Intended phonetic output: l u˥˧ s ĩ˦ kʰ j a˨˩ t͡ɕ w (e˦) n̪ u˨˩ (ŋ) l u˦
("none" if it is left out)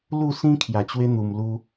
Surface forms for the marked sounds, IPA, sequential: e˦, m

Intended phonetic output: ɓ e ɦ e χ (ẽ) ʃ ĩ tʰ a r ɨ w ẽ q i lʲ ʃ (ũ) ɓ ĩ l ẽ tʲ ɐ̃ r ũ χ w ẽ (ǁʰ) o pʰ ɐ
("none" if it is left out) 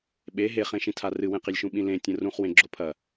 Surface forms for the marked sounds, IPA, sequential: ẽ, ũ, ɡ͡ǁ

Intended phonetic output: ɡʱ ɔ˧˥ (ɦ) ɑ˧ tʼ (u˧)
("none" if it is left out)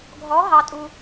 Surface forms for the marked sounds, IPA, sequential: ɦ, u˧

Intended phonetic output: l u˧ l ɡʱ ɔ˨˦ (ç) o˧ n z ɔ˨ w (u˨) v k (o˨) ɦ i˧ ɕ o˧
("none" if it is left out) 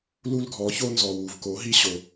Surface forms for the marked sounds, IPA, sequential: ç, u˨, o˨˦

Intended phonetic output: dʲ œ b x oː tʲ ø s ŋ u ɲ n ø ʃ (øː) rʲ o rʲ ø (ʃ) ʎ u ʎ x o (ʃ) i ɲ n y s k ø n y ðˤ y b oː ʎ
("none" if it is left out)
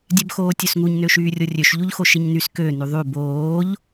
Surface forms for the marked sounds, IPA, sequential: yː, ʃ, ʃ

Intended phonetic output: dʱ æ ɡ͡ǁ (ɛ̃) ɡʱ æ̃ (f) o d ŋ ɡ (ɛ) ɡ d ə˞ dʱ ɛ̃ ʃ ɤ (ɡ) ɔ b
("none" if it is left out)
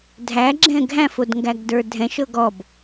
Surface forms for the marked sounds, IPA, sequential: ɛ̃, f, æ, ɡ

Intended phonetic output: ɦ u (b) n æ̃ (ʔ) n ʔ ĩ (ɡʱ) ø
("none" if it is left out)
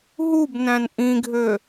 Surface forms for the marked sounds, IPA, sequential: b, none, ɡʱ

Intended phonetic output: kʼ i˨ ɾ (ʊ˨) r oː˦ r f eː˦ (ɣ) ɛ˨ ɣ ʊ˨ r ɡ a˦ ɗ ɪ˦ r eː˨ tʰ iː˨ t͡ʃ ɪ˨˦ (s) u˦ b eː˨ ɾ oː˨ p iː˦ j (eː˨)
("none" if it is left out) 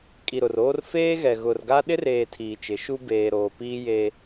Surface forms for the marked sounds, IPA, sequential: ʊ˨, ɣ, ʃ, eː˦

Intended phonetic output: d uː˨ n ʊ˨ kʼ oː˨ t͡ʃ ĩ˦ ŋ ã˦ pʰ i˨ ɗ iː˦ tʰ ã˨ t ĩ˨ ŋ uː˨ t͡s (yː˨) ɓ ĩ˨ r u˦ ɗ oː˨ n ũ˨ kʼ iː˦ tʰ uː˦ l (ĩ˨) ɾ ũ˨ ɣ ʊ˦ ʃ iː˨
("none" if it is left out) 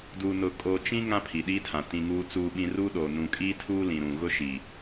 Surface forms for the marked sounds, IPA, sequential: uː˨, ĩ˨

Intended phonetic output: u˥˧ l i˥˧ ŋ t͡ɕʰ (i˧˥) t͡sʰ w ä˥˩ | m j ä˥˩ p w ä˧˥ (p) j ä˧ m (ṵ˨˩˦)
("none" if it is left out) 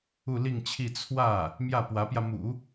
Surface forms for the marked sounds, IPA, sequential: i˥˧, p, ṵ˨˩˦

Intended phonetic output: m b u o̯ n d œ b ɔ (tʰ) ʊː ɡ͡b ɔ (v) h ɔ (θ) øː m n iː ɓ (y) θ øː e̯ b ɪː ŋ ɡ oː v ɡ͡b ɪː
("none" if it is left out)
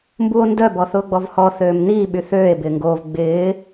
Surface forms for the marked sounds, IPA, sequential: θ, v, θ, y

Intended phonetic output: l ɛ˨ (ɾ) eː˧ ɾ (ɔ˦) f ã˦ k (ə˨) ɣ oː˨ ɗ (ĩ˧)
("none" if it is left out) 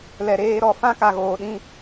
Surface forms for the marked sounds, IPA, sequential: ɾ, ɔ˧, a˨, ĩ˧

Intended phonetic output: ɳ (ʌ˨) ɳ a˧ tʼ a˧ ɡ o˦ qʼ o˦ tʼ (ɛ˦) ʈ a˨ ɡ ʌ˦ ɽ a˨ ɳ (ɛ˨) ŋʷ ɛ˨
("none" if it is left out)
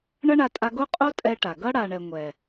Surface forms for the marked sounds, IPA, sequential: ʌ˦, ɛ˦, ɛ˨

